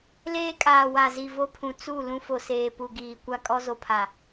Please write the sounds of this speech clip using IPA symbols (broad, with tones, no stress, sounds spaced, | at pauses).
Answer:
l eː˦ kʼ aː˨ w a˨ z i˨ v o˦ pʰ ũ˨ t͡s u˦˨ l ũ˦ f o˨ s eː˨ p u˨ ɡ iː˨ kʷ a˦ kʼ ɔ˦ z o˨ pʰ a˨